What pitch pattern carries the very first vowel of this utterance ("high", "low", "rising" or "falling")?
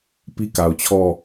high